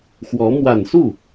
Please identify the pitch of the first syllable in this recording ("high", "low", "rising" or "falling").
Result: rising